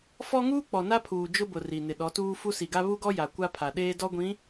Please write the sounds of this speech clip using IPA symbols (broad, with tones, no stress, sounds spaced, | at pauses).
f ɔ˦ ŋ uː˦ k͡p ɔ˨ n a˦ pʰ uː˨ d͡ʒ ʊ˦ b ʊ˨ r i˨ n ɪ˨ ɗ ɔ˨˦ t uː˦ f u˦ s i˨ ɡ a˦ β u˦ ɡ ɔ˦ j a˨ kʷ a˦ pʰ a˨ ɗ eː˦ d ɔ˦ ɡʷ ĩ˨˦